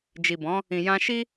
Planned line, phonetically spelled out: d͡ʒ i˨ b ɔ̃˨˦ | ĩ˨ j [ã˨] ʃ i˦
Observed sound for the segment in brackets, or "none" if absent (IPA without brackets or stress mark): ã˧